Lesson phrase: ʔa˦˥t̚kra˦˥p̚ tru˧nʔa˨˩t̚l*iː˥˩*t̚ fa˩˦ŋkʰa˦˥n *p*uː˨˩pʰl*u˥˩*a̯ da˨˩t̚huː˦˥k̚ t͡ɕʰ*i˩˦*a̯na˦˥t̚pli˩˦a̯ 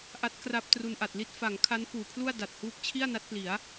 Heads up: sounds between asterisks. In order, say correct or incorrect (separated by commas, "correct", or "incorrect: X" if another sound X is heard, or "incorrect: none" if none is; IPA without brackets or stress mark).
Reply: incorrect: i˥˩, correct, correct, incorrect: i˥˩